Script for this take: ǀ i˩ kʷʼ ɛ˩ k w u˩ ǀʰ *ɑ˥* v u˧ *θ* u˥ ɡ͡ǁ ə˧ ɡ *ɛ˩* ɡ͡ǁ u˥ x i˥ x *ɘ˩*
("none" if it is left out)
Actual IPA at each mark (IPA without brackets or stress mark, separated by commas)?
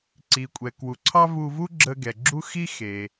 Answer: ɑ˥, v, ɛ˩, e˩